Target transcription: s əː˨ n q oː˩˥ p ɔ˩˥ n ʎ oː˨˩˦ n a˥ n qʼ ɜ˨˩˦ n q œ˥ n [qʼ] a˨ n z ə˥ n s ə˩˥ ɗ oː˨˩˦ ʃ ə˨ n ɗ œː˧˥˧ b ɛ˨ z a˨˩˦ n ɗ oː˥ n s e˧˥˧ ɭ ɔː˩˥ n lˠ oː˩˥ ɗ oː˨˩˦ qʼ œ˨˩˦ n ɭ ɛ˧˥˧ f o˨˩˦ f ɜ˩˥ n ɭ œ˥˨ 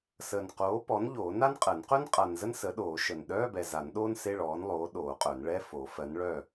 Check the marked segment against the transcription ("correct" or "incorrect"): correct